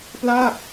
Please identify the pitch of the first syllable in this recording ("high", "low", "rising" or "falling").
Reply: falling